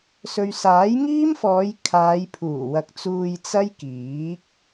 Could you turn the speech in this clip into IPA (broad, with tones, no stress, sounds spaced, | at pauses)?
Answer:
s ɵ˨ ɥ s aː˨˥ j ŋ iː˥ m f ɔː˨˧ j kʰ aː˨˧ j pʰ uː˨˩ w ɐ˨ k̚ t͡s uː˧ j t͡s ɐ˥ j k iː˨˥ k̚